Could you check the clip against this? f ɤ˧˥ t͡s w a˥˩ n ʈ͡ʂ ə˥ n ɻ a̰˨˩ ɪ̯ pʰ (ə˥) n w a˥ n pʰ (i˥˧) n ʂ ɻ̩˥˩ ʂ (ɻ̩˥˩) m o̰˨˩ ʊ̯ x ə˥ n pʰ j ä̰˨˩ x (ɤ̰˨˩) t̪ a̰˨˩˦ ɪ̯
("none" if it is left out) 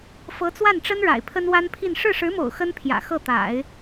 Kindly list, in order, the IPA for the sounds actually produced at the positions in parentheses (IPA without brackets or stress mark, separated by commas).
ə˥, i˥˧, ɻ̩˧˥, ɤ˥˩